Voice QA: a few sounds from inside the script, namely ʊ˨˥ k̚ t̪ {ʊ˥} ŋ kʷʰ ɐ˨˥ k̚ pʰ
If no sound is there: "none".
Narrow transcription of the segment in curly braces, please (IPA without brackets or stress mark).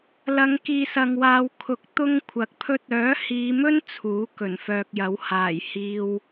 ʊ˥